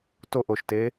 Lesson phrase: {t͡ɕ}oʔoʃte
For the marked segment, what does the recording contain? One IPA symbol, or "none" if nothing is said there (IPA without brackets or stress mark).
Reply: t